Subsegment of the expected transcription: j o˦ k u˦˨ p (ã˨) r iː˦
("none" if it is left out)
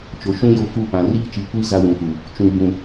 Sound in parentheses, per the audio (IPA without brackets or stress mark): ã˨